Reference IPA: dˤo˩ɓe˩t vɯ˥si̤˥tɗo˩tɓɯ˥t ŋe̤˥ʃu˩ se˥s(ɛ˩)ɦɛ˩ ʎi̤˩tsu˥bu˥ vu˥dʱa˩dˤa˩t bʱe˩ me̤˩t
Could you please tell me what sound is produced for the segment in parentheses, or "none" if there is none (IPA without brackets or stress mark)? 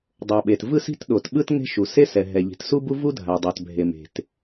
ɛ˩